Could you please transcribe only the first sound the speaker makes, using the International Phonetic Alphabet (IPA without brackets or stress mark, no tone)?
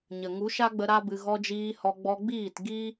ɲ